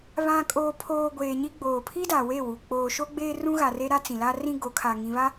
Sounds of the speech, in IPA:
β ã˨ kʼ oː˨ pʰ oː˨ ɡʷ eː˨ ɲ i˦ ɡ͡b oː˨ pʰ i˦ d a˨ w e˦˨ w u˨ k͡p oː˨ ʃ o˦ ɡ͡b eː˦ r ũ˦ ɣ a˨ r e˦ ɾ a˦ t͡s ĩ˨ l a˦ r ĩ˦ ɡ o˨˦ kʰ a˨ ŋ ĩ˨ β a˦

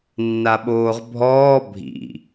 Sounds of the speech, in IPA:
nː a ɓ oː ʁ bʱ ɔː bʱ ḭ

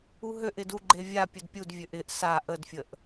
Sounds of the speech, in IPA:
u ɦ ø ʔ ɪ d u ɡ͡ǃ e vʲ a pʲ ʊ d pʲ u d vʲ ø ʔ ɪ ʔ s a ʔ ə d fʲ ə ʔ

